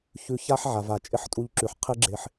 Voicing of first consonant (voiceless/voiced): voiceless